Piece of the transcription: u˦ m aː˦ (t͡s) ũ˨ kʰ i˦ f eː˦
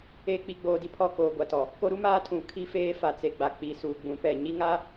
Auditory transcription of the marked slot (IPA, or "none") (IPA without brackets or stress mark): tʰ